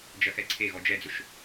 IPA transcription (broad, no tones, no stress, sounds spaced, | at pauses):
d͡ʒ ɐ x ɛ ǀʰ e ɣ ɔ d͡ʒ ɛ d͡z ʊ ʃ